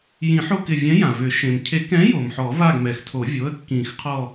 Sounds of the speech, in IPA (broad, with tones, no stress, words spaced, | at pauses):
jĩ˨˩˦ħo˦˨kɪ˩vʲɛ̃˨˥ jã˩vʏ˨˩˦ ʃẽ˩mcʰe˨˩˦kɛ̃˨˥ jo˩mħɔ˨˩˦ va˦˨ɡmɛ˩xtʰo˨˩˦vʲo˩˧˩ə̯ kːĩ˨˩˦xqʰɔ˦˨